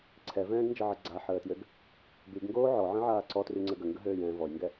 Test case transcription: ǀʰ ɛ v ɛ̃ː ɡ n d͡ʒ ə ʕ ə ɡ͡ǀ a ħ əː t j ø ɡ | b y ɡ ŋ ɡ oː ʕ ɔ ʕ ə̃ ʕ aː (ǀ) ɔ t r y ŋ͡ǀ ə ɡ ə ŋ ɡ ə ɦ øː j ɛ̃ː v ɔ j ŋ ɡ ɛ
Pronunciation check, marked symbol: correct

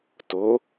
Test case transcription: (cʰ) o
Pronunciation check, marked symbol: incorrect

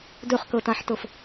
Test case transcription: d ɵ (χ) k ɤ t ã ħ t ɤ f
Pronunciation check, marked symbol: correct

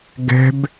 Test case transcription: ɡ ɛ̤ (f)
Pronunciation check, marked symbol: incorrect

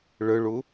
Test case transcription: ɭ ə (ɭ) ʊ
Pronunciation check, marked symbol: correct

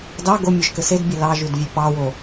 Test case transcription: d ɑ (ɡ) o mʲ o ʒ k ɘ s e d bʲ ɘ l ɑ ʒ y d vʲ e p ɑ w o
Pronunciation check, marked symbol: correct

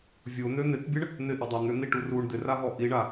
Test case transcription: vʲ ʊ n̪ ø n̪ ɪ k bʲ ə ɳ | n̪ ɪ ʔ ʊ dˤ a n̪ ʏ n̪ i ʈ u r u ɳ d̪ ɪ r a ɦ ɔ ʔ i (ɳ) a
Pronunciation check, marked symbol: correct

